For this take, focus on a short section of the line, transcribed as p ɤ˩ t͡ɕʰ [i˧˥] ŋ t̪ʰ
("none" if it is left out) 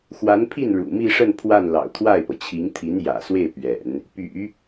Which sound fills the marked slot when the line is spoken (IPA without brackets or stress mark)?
i˧˥